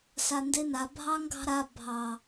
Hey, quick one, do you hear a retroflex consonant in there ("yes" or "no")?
no